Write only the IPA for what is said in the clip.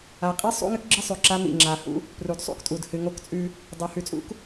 a˨ qʼ i˦ sˤ ṵ˦ ŋ ɨ˦ k ɡ͡ǁ ɨ˦ sˤ ʉ˨ ǁ a˦ m ḭ˨ ŋ͡ǁ a˨ h ṵ˦ | p r u˨ d sˤ ṵ˦ k tʼ u˨ d h ɨ˨ ŋ o˦ k t͡sʼ ʉ˦ | dˤ u˨ h ʉ˨ t͡sʼ ṵ˦ k

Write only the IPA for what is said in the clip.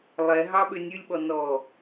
lˠ ɛ ɦ ɑ ɓ ø nʲ ʉ lʲ ɓ ɔ n ɔ

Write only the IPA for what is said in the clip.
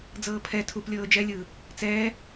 d͡z ɤː pʰ ɛ tʰ u p lʲ ɤː d͡ʒ ɛ lʲ ɯː | t͡s ɛː

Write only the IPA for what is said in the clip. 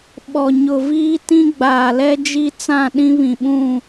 ɓ ɔ˨ ɲ ʊ˨ v iː˦ t ĩ˦ ɡ͡b aː˨ l ɛ˦ d͡ʒ i˦ t͡s ã˦˨ ɗ ĩ˦ β ĩ˨ ɓ ũ˦˨

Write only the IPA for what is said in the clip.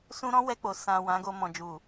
s ũ˧ ɾ ɔ̃˦ w ɛ˧ k͡p o˨ s ã˨ w ã˨˦ ɡ o˧ m ɔ̃˨ d͡ʒ u˨

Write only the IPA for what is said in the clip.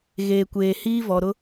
ɣ eː˨ kʷ eː˨ h iː˦ v ɔ˨ ɾ ʊ˦

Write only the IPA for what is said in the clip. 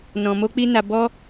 n ɔ̃˧ m o˦ k͡p i˦ n a˦ b ɔ˦

